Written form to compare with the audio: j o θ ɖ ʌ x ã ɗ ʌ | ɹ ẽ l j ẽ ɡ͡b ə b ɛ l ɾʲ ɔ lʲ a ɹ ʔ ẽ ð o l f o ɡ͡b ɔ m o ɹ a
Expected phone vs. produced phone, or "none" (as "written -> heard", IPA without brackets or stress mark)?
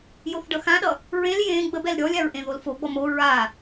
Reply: none